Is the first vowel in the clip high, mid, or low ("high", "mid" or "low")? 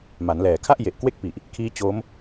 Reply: low